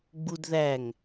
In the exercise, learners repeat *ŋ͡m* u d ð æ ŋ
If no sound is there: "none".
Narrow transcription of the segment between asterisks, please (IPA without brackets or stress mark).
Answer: ɡ͡b